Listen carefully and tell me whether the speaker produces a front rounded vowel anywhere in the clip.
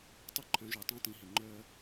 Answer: yes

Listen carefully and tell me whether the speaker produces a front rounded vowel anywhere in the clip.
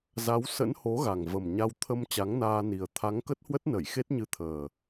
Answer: no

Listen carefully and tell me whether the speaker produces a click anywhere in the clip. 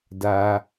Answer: no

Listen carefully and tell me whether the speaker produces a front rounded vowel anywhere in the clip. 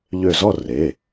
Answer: yes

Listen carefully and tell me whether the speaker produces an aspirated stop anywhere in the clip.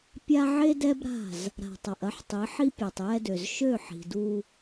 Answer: no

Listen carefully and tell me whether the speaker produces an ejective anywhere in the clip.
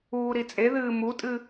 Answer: yes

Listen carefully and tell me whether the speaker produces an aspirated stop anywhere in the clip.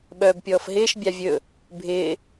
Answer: no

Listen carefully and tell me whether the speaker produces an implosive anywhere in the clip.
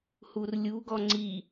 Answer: no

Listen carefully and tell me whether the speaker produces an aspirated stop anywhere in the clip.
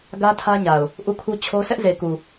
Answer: yes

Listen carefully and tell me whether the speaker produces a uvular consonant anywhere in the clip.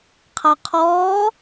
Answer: yes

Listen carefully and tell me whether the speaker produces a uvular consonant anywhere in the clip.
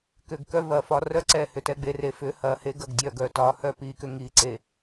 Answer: no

